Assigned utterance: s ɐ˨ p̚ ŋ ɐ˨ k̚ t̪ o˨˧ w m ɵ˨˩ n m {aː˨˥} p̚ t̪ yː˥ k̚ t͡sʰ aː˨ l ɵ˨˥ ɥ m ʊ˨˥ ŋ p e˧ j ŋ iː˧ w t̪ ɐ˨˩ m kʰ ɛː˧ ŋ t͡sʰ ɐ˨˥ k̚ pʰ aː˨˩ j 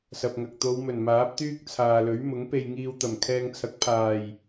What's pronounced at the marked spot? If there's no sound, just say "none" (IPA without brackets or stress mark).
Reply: aː˨˥